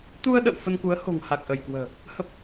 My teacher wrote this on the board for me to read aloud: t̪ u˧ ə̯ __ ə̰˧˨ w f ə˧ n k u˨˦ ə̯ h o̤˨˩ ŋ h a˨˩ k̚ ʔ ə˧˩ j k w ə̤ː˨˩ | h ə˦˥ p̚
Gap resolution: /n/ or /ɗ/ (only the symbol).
ɗ